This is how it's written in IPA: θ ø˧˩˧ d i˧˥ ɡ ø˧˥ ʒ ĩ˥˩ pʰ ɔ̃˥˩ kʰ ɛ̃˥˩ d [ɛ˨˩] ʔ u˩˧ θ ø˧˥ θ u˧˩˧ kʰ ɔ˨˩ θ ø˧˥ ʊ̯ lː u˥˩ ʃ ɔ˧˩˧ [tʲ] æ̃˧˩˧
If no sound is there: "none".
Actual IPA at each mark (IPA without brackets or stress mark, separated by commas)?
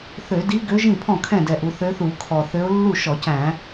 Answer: ɛ˨˩, c